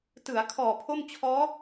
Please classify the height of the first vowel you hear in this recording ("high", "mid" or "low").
high